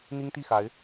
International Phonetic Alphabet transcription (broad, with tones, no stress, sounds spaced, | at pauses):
n̪ i˥ ŋ t̪ i˥˩ x a˧˥ ɪ̯